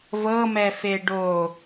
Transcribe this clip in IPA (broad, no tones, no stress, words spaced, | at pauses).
vɤmɛ feɖo